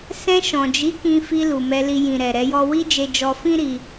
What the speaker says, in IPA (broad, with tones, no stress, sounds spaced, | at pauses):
s ɛ̃˧ ʃ ɔ̃˨ d͡ʒ i˨˦ k ĩ˧ f i˧ l u˨ m ɛ˧ l i˧ j ĩ˨ ɾ ɛ˨ ɾ ɛ˧ j ɔ˧ w i˦ d͡ʒ e˧ d͡ʒ ɔ˧ f ĩ˦ ɾ i˧